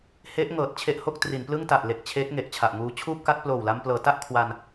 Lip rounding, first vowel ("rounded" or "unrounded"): unrounded